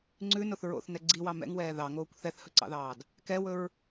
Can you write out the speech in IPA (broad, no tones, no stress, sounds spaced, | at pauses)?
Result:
ŋ͡ǀ ʉ n o θ ɹ o̰ θ n ɛ ɡ͡ǀ i w ɑ m ɛ̰ ŋ w ɛː ð ɑ ŋ oː kʷ θ ɛ θ h ɵ ǀ ɑ̰ ð ɑː d | k ɛ w ɵ ɹ